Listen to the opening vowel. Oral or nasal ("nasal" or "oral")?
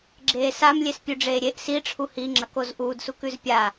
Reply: oral